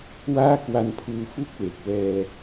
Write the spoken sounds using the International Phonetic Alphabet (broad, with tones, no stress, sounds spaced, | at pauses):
w aː˥˩ k w a˧ n pʰ uː˧ f u˥˩ k̚ w e˨˩ k̚ w ɛː˧